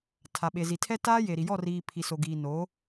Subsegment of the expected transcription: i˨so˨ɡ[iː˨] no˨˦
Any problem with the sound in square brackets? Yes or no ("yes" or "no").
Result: no